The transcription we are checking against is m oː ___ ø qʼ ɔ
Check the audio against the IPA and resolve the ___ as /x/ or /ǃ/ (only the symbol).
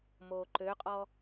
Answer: ǃ